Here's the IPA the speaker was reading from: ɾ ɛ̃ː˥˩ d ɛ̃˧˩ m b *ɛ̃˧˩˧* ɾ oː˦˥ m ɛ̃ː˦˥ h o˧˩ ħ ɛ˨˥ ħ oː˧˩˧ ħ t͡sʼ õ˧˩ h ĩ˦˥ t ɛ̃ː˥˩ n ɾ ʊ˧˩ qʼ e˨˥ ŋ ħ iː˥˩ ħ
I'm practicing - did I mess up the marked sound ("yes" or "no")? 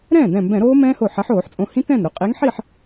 no